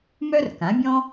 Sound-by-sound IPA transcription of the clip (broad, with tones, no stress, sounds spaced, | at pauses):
m œ˥ r k ã˩˥ bʲ ɔ̃˥